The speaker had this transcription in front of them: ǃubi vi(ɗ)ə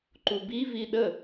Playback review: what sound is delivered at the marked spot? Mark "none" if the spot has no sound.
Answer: ɗ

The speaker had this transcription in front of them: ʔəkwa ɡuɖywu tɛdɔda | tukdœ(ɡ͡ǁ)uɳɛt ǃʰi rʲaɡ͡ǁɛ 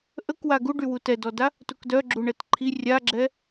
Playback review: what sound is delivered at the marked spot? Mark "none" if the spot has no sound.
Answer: ɡ͡ǁ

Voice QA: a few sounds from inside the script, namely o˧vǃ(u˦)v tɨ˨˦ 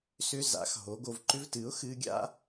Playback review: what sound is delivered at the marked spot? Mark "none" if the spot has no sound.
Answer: ʏ˦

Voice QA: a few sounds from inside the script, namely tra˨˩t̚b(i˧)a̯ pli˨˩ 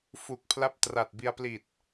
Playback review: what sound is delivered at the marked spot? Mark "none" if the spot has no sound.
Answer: i˧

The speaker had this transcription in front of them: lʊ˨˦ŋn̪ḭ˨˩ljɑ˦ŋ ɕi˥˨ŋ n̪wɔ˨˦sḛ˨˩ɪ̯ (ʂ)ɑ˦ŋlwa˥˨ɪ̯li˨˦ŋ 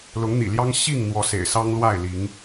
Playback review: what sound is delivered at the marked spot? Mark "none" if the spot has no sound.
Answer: s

